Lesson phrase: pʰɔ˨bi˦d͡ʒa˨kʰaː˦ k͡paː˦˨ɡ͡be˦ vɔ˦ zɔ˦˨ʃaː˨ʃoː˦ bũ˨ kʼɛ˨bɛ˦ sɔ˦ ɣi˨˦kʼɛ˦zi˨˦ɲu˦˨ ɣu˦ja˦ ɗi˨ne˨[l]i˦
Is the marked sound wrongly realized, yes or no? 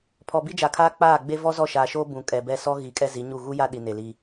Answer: no